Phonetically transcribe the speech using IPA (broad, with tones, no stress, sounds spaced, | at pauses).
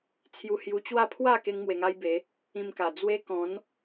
t͡sʰ j u˧ h j u˧ t͡ɕ w a˥˧ pʰ w a˥˧ k e˦ ŋ m w e˧ ŋ a˦ j b e˨˦ | ĩ˧ m k a˨˩ d͡z w e˦ k ɔ̃˨˦ n